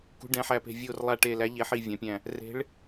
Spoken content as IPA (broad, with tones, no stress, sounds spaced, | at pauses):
k ṳ˨˦ ɖ ɛ̃˨˦ ħ æ˧˩ p e̤˧˩ vʲ o˧˩ r lˠ a˧˩ ʈ e˧˩ l æ˨˦ ʎ e˨˦ ħ i˧˩ vʲ ã˨˦ pʲ æ̃˧˩ | r e̤˨˦ ɭ